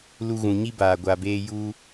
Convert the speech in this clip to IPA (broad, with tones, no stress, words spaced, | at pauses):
lu˧ɣũ˨ɲi˦baː˨ ɡʷa˧beː˦ ju˦